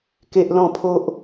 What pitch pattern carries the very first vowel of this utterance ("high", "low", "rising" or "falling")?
high